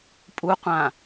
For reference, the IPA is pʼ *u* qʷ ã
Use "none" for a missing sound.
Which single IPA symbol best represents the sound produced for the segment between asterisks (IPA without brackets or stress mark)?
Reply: u